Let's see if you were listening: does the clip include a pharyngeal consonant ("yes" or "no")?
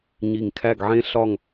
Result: yes